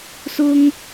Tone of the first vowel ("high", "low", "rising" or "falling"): high